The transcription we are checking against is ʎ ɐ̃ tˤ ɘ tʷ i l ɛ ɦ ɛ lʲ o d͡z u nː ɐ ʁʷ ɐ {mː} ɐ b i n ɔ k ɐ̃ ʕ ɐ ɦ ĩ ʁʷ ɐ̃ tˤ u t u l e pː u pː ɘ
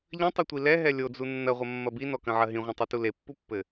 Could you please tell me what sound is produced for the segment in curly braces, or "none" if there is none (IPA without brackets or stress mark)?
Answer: mː